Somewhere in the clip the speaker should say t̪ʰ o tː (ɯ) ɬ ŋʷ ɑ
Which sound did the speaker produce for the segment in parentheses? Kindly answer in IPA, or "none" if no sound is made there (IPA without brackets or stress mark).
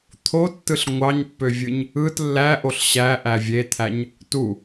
ɯ